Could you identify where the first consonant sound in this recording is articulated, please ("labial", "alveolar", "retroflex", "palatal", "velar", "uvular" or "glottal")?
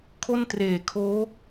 velar